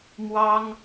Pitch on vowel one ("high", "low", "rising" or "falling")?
high